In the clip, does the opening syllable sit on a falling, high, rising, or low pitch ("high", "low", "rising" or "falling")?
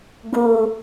low